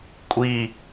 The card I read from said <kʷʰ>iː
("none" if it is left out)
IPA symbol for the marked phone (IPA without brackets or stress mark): kʷʼ